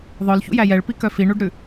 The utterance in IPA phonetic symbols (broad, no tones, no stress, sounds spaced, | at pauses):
ðˤ œ l ç ṵ j æ j ɛ ɭ p i k œ f i ɳ u ɖ ɾ ʉ